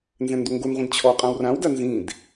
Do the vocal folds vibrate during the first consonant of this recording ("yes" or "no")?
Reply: yes